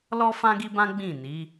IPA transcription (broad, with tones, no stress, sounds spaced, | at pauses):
l ɔ˦ f ã˦ ɡ i˦ b ã˦ ɡ͡b ĩ˦˨ n i˨˦